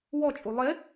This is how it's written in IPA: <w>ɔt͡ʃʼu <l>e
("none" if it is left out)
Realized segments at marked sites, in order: w, lˠ

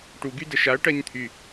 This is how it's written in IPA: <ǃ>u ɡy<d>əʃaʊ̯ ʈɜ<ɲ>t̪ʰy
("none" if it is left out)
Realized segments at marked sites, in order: ʈ, d, ɲ

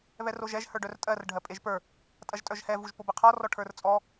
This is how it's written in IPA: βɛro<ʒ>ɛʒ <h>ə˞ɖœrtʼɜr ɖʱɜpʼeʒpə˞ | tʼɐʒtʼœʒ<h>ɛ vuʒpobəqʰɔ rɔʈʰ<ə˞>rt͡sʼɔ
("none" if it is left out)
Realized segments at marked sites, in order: ʒ, h, h, ə˞

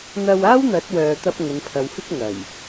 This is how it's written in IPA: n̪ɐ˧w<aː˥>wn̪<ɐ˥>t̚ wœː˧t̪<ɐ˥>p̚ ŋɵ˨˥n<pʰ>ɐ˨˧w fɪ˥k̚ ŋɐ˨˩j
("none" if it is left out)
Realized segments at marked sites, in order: aː˥, ɐ˨˥, ɐ˥, pʰ

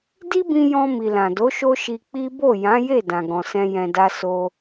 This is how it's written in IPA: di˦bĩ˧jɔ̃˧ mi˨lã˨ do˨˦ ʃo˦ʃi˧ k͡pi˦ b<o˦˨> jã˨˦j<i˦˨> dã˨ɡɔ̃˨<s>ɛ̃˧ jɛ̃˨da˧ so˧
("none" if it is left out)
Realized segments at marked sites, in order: o˦˨, e˦˨, s

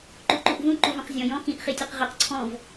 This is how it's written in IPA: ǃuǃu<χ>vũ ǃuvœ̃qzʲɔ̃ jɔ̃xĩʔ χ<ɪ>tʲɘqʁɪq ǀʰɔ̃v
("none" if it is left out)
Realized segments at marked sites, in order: ʔ, i

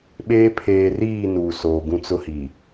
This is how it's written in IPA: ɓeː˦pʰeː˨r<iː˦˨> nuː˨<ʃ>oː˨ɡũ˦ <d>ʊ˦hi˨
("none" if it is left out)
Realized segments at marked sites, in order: iː˦˨, s, t͡s

